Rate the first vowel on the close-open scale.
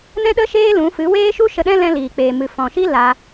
mid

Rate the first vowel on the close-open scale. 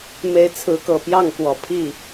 mid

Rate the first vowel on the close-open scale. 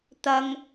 open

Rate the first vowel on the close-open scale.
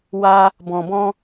open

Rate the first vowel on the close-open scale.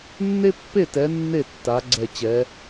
mid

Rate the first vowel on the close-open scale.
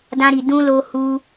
open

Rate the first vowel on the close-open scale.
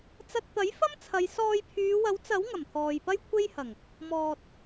open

